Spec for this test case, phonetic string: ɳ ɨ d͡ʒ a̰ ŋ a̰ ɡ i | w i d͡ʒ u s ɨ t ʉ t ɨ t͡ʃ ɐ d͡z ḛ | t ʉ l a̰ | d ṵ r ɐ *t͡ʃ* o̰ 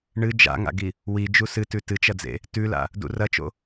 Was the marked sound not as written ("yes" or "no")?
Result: no